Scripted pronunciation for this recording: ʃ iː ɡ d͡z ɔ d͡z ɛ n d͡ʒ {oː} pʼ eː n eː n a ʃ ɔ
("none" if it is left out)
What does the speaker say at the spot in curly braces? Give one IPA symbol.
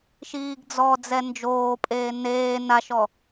oː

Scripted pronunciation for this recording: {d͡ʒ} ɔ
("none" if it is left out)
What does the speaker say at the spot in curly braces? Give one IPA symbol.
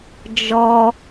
d͡ʒ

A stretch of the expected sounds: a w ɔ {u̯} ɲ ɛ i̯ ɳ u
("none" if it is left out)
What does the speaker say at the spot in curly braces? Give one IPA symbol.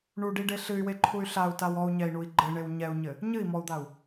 u̯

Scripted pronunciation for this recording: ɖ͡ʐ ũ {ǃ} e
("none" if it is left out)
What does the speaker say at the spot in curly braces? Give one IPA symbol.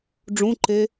ǃ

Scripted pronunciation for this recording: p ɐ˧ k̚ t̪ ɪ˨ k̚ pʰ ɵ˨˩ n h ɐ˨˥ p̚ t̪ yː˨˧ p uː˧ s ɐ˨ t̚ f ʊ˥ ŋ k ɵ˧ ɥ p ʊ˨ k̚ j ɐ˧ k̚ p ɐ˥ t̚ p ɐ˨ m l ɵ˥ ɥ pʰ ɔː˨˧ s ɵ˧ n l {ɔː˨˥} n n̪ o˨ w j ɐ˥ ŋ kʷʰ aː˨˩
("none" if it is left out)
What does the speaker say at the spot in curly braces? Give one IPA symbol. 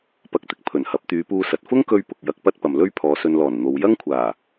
ɔː˨˩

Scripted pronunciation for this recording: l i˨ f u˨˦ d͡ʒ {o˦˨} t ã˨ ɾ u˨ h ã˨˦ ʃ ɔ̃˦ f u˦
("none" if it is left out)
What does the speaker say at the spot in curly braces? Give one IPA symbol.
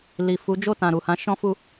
o˦˨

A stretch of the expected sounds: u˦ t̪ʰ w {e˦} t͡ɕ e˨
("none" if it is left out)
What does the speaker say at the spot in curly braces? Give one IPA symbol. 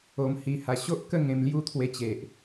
e˧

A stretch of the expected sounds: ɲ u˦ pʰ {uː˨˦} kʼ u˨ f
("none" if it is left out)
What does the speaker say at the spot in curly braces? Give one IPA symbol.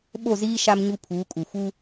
uː˨˦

